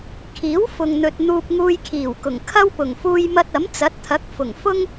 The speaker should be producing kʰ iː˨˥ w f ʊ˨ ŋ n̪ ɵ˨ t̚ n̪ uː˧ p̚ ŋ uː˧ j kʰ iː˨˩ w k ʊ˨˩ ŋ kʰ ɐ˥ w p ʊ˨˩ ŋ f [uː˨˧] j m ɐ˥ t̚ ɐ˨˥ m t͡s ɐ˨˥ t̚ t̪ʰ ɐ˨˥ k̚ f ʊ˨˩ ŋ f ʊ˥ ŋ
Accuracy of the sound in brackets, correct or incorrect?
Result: incorrect